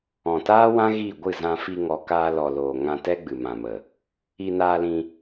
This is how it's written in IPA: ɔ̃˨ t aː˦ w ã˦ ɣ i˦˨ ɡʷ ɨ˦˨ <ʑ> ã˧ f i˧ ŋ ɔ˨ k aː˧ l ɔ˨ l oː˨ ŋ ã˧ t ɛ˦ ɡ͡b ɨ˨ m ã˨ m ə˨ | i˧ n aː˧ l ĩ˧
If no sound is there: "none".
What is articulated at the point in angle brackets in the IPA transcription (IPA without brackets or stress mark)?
z